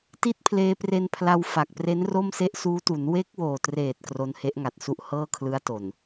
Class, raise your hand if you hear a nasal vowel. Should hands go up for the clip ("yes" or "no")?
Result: no